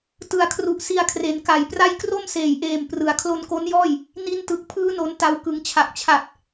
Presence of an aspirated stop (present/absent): present